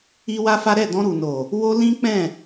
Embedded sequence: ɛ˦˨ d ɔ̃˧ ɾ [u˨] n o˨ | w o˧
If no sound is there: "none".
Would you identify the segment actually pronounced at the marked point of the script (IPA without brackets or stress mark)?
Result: u˨